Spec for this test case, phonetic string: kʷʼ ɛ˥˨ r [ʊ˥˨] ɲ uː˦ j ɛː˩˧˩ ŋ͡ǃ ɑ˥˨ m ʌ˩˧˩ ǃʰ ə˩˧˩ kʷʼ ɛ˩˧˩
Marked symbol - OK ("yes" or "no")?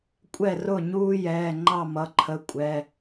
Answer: yes